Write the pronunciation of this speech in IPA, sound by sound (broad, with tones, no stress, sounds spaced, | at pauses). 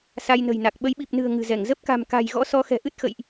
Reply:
s a˧ j n ə̤˨˩ j n a˨˩ k̚ ɓ ə˨˦ j ɓ i˨˩ p̚ n ɨ̤˨˩ ə̯ ŋ ɨ̤˨˩ z ɛ˧˩ ŋ z ə˦˥ p̚ k a̤˨˩ m k a̤˨˩ j ɣ ɔ̰˧˥ s ɔ˨˦ x ɛ̤˨˩ ʔ ɨ˦˥ t̚ x ə̰˧˨ j ʔ